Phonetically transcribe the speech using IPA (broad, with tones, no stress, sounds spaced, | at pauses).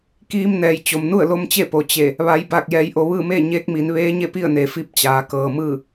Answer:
k iː˧ m n ɛː˩ j t͡ɕ o˩ m n u˥˨ ə̯ l o˧˥ m t͡ɕ e˥˨ p o˩ t͡ɕ e˧˩ | ʋ a˩˧ j b a˧˩ k̚ j ɛː˩˧ j ʔ o˩ ʋ ɯː˥˨ m eː˥˨ ɲ eː˧˥ k̚ m i˩˧ n ʋ eː˧˥ ɲ e˥˨ p i˥˨ ə̯ n e˩ f i˧˥ p̚ t͡ɕ aː˩˧ k ɤː˩ m ɯː˥˨